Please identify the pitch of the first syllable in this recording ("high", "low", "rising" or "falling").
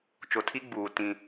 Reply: low